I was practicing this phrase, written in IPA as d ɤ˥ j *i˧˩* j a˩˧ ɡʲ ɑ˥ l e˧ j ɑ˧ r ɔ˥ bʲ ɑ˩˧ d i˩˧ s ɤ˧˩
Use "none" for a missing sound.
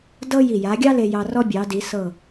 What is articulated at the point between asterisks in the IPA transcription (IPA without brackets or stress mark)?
i˧˩